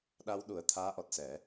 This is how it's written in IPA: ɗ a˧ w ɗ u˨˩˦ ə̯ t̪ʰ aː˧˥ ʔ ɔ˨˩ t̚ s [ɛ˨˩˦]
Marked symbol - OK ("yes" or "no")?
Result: yes